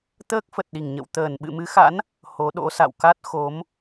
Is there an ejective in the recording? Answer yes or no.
no